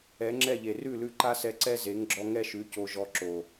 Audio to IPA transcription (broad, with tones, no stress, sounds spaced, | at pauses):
ɛ˨˦ ŋ͡ǁ ɛ˦˨ ʎ e˨ r ʉ˦˨ l ʉ˧ ǃ a˦ s ɛ˧ ǀ ɛ˦ z e˨˦ ŋ ɡ͡ǁ ɔ˧ ŋ ɛ˦ ʃ ʉ˨˦ c o˧ ʒ ɔ˧ ǁ o˨